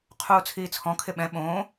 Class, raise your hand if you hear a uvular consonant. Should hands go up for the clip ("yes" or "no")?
yes